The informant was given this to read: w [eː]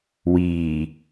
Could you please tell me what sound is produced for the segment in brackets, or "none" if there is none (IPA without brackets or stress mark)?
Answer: iː